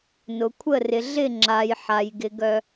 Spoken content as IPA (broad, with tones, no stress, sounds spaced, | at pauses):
n ʊ˨ kʷʰ ə˦˨ r ɪ˨ ɮ ɪ˦˨ ŋ͡ǁ a˨ j ħ a˨ j ɡ ɪ˨ ɡ œ˦